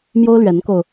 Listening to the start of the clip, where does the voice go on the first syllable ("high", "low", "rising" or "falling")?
high